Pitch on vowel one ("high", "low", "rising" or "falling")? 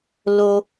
high